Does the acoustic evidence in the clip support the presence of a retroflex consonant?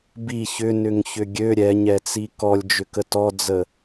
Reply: no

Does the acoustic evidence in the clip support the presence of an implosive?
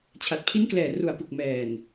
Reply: no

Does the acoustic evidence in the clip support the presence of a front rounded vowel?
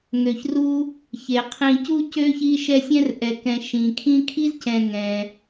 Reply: yes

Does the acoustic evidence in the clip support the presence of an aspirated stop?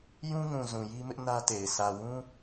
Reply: no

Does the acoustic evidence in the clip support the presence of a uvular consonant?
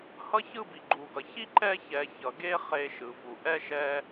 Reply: yes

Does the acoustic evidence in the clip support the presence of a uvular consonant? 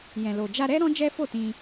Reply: no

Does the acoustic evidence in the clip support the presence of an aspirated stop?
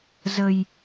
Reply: no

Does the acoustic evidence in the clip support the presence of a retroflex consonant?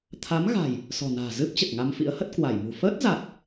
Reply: no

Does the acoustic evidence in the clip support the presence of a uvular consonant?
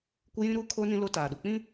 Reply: no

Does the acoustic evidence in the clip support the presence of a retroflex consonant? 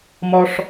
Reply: yes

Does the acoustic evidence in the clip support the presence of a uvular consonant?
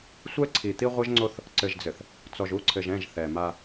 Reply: yes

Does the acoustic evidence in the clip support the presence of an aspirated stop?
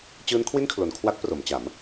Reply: yes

